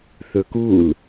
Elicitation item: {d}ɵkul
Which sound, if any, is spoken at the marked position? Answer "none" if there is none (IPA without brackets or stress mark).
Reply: θ